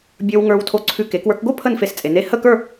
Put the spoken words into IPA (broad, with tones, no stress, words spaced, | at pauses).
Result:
bʲə˞˧w ŋə˞˧wtʰo˧ǀʰʉ˧ ke˩˧kwə˞˧kɡo˥˧ pʰə˥˧nfe˧st͡sʼe˩˧ne˥˧ hə˥˧kə˞˥˧